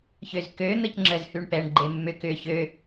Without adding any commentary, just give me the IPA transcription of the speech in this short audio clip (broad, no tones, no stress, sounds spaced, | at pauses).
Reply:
ç ø z k ø n̪ ə c ŋ͡ǁ ə z h y ɳ p ɛ ɳ ɡ͡ǃ e mː ʏ k ʏ ç ø